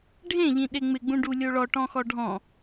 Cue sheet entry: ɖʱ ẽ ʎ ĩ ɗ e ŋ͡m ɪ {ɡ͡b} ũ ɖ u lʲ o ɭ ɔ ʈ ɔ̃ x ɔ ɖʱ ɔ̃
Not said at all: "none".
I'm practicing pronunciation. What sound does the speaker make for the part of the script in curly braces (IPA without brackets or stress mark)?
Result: ɡ͡b